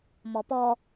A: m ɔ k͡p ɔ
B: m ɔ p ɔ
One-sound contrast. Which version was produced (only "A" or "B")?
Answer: B